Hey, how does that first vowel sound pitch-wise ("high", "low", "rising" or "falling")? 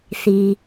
low